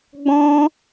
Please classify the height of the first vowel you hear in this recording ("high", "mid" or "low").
mid